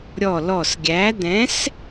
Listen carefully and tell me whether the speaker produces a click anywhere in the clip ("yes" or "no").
no